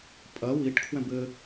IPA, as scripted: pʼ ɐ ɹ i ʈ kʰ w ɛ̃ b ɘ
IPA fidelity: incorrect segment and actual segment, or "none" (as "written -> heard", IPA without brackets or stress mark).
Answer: ɹ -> w